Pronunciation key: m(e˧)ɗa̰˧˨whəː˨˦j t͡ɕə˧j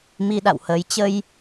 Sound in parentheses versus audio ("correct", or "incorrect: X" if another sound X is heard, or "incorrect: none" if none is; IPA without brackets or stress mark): incorrect: i˧